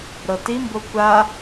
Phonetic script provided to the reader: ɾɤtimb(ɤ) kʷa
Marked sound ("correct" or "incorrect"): incorrect